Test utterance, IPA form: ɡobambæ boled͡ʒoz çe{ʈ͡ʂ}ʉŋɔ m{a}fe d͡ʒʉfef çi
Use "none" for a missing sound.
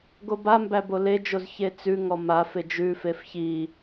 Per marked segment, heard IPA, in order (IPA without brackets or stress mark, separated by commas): t͡s, a